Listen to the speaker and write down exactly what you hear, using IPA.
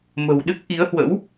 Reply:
m ə̤˨˩ w ɗ ɨ˦˥ k̚ ʔ i˨˦ ə̯ h w ə̰˧˥ w

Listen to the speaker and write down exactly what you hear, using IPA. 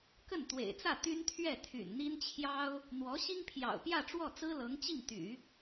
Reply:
k ə˥˩ n t̪ w ḛ˨˩ ɪ̯ t͡s ä˥˩ t̪ y˥ n t̪ʰ ɥ ɛ˥˩ t̪ʰ y̰˨˩ n n̪ i˥ n t͡ɕʰ j ɑ˥ ʊ̯ | n̪ w ɔ˧˥ ɕ i˥ ŋ pʰ j ɑ̰˨˩ ʊ̯ p j ä˥˧ ʈ͡ʂ w ɔ˥˩ t͡s ɹ̩˥ l ɤ˧˥ ŋ t͡ɕ i˥˩ ŋ t̪ y̰˨˩˦

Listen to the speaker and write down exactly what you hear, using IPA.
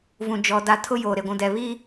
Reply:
v ũ˨ d͡ʒ ɔ˨ d a˨˦ tʰ ʊ˦ j oː˨ ɾ e˨ ɡʷ ũ˨ d ɛ˨ β iː˦

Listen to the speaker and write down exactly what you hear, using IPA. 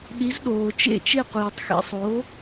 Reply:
ɗ i˩˥ z ɗ oː˩ t͡ʃ ḛ˥˩ t͡ʃ e˥˩ qʷ iː˩ tˤ x ḛ˧ sˤ o˩˥

